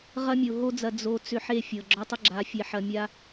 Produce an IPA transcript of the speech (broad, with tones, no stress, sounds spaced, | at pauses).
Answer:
ʁ ɐ˦ mʲ o˨ ɦ o˦ d͡z ɐ˧ d͡z o˧ t͡s ʏ˧ ħ e˦˨ fʲ ɤ˨ ɡ͡ǁ ɔ˧ tˤ ə˦ ɡ͡ǁ a˨˦ fʲ e˧ ħ ɐ˧ mʲ a˦